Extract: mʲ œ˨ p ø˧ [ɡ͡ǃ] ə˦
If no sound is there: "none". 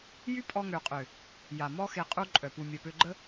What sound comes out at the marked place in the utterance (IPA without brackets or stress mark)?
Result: ɡ͡ǃ